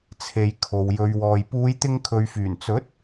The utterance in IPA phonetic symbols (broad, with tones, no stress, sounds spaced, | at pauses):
t͡sʰ e˨ j kʰ o˨ w j ɵ˨˧ ɥ w ɔː˨ j p uː˨˧ j t̪ ɪ˧ ŋ kʰ ɵ˨ ɥ f yː˨˩ n t͡s ɵ˨˥ t̚